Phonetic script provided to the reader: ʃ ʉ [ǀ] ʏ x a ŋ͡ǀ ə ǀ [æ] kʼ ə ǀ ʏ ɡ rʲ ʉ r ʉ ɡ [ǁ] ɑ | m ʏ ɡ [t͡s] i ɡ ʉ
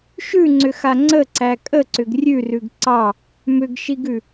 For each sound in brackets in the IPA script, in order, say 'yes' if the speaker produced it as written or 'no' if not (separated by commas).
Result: no, yes, no, no